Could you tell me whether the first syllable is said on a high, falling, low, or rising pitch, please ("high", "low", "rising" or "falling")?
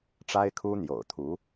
high